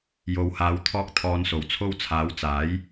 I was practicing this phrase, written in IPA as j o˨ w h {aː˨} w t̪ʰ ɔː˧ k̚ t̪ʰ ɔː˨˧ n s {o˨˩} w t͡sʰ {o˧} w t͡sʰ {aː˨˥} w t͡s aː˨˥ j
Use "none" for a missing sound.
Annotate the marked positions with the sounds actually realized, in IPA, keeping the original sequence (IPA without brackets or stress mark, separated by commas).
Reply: aː˨˧, o˨˩, o˧, aː˨˥